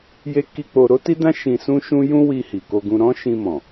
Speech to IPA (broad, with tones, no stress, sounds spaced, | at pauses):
j e˦ k i˦ k͡p o˧ ɾ o˦ t i˦ d ã˦ ʃ ĩ˧ s ũ˦ ʃ ũ˦ j ũ˦ w i˧ h i˨ k o˧ ɡ ũ˧ ɾ ɔ̃˦ ʃ ĩ˧ m ɔ̃˨